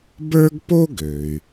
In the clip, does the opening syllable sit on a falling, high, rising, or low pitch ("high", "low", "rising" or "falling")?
high